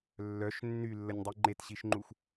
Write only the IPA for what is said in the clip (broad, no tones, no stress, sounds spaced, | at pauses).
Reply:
lː œ ʃ nː y lː ə nʲ dˤ i ŋ͡ǃ e t ɕ i ʃ ŋ͡ǃ u x